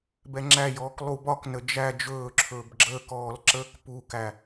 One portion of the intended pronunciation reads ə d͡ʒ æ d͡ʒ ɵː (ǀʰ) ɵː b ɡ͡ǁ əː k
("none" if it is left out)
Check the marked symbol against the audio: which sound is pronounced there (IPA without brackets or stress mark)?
ǁʰ